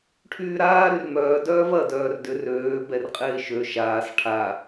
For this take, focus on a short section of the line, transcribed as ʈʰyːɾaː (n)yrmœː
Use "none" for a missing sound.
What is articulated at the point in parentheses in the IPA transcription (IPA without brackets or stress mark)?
ɾ